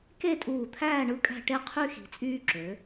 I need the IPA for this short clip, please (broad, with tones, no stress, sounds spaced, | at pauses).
k e˥˧ tʼ uː˧˩ t̪ʰ æː˥˧ ɳ ɯ˧ kʼ æ̤˧ ʈ e˧ qʰ y˧ x i̤˩˧ t͡sʼ yː˧ ǁ ø˩˧